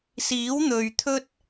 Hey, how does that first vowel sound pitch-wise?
rising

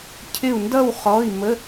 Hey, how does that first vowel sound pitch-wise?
falling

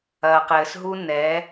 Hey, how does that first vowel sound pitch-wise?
low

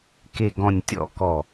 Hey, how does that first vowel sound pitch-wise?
low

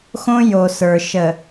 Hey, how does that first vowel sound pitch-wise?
high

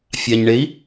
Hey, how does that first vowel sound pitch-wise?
low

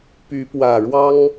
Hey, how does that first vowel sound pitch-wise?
rising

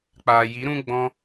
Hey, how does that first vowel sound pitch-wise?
low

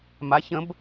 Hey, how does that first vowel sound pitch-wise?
rising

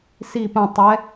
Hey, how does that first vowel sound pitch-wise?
falling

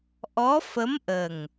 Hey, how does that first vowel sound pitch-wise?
rising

